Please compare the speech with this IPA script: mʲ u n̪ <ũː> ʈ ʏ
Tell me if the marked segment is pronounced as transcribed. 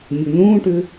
yes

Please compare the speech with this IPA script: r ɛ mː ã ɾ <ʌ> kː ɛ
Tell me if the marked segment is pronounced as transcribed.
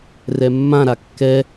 no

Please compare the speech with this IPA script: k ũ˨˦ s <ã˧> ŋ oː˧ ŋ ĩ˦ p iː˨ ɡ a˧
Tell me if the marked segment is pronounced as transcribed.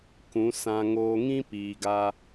yes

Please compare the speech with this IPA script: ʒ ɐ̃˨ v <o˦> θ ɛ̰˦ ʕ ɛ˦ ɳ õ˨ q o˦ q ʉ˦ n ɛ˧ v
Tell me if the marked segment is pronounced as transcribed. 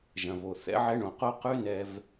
no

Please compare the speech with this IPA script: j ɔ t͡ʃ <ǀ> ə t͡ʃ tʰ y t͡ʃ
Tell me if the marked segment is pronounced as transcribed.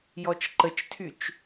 no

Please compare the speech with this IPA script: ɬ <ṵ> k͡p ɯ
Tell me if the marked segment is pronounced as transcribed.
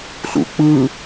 yes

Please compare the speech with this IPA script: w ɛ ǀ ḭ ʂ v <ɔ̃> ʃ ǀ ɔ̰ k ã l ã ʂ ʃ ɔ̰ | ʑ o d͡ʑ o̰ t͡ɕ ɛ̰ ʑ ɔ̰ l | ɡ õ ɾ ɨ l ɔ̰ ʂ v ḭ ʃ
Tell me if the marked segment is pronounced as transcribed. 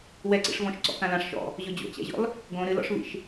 yes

